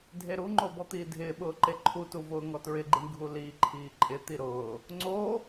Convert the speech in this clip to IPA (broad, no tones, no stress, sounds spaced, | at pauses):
dʱ e ɾ u ŋ͡ǃ o b ɔ t̪ iː dʱ ɪː ɓ ʊː ǃ e ǃʰ u t u v ʊː ŋ ɔ t ɹ ɪ ɡ͡ǃ i ɳ ɡʱ u l i ǃʰ iː ǃʼ ɪ t̪ i ɾ ʊː | ŋ͡ǀ o